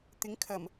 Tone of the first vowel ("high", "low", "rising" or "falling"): rising